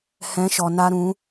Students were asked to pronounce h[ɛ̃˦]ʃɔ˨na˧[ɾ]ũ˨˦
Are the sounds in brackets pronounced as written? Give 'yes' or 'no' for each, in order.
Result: no, yes

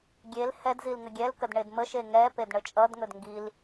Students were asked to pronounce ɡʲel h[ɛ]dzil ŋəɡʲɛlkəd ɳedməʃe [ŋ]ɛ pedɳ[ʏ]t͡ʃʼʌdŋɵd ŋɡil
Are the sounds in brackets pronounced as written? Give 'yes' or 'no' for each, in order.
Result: yes, yes, no

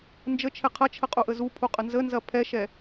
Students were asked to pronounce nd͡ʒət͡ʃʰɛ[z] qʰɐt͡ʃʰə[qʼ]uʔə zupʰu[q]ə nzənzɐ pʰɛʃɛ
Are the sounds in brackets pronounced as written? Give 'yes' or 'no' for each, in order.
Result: no, yes, no

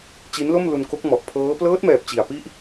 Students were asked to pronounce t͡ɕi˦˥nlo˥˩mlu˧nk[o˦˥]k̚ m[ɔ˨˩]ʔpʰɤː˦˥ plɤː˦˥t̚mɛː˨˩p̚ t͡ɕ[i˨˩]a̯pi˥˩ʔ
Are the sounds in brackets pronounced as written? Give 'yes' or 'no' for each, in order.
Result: yes, yes, yes

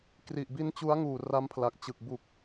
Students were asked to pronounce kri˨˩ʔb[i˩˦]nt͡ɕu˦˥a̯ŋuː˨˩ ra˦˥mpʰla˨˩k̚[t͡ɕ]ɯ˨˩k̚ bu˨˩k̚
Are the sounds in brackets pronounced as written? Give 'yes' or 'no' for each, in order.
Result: no, yes

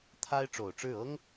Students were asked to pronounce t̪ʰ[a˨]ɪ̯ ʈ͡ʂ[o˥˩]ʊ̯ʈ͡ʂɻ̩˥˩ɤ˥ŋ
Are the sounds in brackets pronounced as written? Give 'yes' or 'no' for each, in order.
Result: no, no

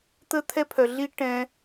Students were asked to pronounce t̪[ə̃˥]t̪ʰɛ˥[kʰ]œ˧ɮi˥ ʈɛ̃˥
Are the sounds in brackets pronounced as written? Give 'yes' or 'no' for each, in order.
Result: no, no

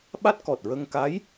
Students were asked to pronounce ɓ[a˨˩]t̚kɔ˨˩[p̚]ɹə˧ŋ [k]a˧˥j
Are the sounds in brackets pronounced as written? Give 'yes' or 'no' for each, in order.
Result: no, no, yes

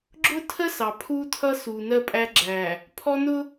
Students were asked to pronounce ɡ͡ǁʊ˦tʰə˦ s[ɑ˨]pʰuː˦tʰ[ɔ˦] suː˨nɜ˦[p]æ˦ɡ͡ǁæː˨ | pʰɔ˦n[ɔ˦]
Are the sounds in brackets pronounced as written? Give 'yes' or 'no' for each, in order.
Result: yes, no, no, no

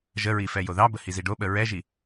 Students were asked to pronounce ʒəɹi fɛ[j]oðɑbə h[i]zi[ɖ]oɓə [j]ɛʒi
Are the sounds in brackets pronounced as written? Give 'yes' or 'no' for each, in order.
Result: yes, yes, yes, no

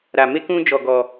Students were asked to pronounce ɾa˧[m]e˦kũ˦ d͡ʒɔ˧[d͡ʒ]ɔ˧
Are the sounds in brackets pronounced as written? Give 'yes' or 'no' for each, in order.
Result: yes, no

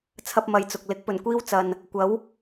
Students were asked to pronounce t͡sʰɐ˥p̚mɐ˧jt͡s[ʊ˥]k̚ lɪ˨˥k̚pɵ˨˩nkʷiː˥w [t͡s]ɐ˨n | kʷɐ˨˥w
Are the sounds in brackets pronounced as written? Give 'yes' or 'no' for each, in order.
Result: no, yes

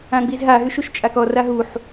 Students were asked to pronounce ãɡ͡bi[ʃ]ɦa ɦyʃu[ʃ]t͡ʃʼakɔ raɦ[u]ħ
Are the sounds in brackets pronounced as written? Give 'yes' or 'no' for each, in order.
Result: no, yes, yes

